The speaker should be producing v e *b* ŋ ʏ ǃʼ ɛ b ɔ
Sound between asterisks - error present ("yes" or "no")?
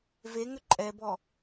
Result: yes